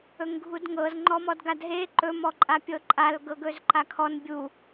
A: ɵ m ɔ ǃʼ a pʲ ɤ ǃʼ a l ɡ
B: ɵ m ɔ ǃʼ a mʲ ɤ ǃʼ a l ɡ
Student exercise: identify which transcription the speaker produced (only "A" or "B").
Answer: A